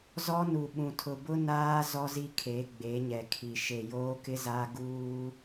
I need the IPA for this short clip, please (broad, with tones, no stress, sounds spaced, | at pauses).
z ɔ˦ n u˨ ɓ ũ˨ tʰ ʊ˨ b ʊ˦ n aː˦ z ɔ˦ z i˦ kʰ e˨˦ ɡ͡b e˨˦ ɲ ɛ˨ kʰ i˨ ʃ e˨ j oː˦ k ɪ˦ z aː˦ ɡ uː˦